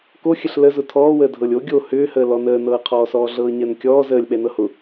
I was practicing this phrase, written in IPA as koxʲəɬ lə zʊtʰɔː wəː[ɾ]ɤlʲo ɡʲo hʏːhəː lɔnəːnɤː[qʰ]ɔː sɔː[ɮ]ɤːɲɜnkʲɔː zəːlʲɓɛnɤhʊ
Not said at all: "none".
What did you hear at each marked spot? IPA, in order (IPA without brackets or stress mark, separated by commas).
dʱ, qʰ, ɮ